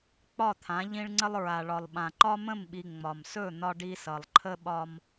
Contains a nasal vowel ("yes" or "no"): yes